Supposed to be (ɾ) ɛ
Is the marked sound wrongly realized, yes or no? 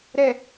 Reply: no